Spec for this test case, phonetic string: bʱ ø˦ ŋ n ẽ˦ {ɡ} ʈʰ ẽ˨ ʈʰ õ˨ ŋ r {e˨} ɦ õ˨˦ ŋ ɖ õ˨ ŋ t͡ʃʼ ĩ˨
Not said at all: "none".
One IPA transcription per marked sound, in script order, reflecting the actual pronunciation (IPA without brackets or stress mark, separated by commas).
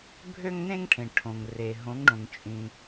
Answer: ŋ, e˨